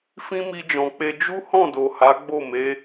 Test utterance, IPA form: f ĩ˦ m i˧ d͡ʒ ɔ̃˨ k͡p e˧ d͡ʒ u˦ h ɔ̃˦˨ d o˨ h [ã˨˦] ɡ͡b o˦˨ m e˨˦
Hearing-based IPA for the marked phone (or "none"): a˨˦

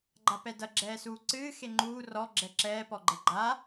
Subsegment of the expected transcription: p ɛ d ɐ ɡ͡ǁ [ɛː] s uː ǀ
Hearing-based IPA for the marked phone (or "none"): ɛː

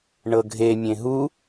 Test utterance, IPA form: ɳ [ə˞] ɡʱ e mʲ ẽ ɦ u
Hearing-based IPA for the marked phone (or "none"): ɤ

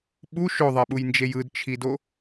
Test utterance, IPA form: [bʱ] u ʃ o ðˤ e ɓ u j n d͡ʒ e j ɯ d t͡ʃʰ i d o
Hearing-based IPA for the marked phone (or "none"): ɓ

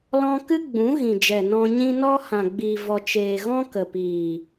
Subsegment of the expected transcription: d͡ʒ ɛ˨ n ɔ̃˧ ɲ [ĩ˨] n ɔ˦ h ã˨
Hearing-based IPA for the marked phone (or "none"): ĩ˦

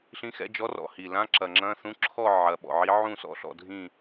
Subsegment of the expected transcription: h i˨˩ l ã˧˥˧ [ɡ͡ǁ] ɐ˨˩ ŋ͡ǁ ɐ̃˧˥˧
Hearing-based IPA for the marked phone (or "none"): ǁ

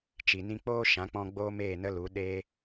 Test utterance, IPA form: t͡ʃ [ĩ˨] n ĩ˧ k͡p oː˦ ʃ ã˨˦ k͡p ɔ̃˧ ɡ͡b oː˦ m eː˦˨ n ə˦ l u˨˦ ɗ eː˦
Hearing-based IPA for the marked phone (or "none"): i˨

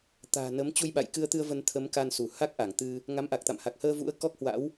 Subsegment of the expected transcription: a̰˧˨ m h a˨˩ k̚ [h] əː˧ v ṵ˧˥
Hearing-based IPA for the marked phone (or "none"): h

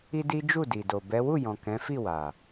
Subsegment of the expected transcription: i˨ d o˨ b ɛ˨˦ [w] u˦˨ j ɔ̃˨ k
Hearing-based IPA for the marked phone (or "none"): w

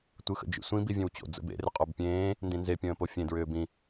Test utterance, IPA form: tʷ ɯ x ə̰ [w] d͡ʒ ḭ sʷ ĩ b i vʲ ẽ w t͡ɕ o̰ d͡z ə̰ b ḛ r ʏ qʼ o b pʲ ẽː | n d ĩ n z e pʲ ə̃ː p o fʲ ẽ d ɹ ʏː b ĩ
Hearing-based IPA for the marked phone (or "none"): none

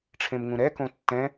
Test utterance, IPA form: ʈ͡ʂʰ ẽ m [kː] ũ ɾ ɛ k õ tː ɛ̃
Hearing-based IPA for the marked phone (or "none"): ŋ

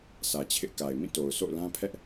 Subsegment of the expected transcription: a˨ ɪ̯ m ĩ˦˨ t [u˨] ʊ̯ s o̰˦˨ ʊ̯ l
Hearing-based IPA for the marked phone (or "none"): o˨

